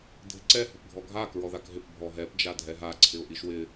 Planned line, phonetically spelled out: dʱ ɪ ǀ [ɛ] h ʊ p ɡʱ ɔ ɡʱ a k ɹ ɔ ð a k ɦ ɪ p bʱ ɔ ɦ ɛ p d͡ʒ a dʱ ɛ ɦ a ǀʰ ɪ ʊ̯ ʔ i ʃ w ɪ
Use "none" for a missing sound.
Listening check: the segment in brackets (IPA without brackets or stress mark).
ɛ